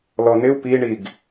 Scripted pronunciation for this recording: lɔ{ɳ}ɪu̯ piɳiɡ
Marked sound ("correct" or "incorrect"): incorrect